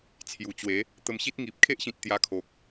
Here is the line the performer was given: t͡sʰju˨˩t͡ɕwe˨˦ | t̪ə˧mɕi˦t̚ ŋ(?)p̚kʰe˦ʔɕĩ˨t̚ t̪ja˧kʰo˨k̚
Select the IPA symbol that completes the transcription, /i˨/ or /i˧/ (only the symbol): i˨